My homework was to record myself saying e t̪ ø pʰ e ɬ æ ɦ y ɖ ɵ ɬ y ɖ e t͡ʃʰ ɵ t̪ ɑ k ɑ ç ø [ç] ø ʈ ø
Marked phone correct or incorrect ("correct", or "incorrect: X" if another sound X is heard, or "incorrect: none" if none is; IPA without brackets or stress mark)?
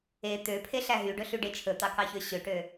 incorrect: ɕ